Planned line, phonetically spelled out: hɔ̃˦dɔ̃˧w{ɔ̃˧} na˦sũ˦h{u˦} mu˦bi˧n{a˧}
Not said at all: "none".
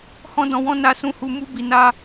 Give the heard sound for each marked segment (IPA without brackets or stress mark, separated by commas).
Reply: ɔ̃˦, u˦, a˦